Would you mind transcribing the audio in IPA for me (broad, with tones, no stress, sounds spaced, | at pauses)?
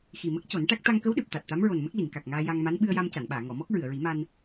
x i˨˩ m ə˦˥ k̚ c o˨˩˦ n ʈ a˦˥ k̚ t̪ a˧ ŋ k ə˧˥ w ɗ ɨ˨˩ p̚ t̪ a˨˩ t̚ t̪ a˧˥ m ɹ o˨˩ n m ə˦˥ k̚ l i˨˩˨ ŋ k a˨˩ k̚ ŋ aː˧ j a˧ ŋ m a˧˥ n ɓ ɨ˧ ə̯ j a˧ m c a˨˩˨ n ɓ aː˨˩˨ ŋ ɔ˨˩˨ m ɔ˦˥ k̚ ɹ ɨ˨˩˨ ə̯ ɹ i˨˩˦ m a˧ n